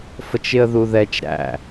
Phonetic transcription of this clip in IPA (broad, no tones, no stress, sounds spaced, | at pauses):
f ə t͡ʃ ɪ ə̯ ð u ð ɛ t͡ʃ ɾ æ̰